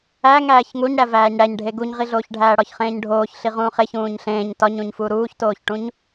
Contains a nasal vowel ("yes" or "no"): yes